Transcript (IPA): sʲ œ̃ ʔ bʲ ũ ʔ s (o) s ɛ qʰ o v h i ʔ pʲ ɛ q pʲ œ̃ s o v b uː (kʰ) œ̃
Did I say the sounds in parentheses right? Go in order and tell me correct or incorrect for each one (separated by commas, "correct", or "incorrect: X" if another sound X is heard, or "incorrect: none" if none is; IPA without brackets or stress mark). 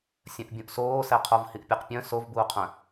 incorrect: oː, incorrect: qʰ